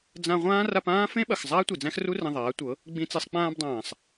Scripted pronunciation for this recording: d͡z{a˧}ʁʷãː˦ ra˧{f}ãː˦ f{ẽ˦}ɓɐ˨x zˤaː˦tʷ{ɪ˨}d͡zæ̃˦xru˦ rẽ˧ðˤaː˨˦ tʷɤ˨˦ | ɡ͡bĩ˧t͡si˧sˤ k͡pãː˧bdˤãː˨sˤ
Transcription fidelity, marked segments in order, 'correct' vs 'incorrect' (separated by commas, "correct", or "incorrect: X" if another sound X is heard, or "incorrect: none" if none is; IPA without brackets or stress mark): incorrect: ã˧, incorrect: p, correct, incorrect: i˨